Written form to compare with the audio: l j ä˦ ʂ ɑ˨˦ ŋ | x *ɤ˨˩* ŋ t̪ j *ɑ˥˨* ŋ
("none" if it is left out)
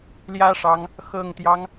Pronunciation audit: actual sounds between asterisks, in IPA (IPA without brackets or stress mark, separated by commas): ɤ˨˩, ɑ˦